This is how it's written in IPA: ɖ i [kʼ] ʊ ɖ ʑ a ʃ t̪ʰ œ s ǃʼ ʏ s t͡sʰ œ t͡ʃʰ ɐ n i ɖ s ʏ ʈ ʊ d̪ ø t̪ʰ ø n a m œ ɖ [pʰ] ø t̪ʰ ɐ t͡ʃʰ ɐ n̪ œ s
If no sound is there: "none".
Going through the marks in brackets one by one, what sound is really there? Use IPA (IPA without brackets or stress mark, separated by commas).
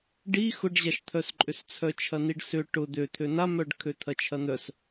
x, kʰ